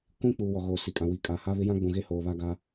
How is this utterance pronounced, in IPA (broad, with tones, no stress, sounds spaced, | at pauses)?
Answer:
kʷ ĩ˦ k͡p uː˨ w ɔ˨ ɣ oː˨ s i˨ kʼ ã˨ w i˨ kʼ aː˨ h a˦ β ɪ˦ j ã˦ ɡ͡b ũ˨ ɣ e˦ h oː˨ β a˦ ɡ a˦